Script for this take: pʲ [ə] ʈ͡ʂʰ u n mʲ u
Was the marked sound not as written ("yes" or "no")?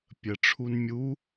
no